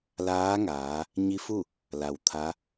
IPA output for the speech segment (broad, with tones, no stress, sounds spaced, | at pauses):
l aː˧˥ ŋ aː˩˧ | ɲ i˧˥ f u˥˨ | l a˩ w t̪ʰ a˧˥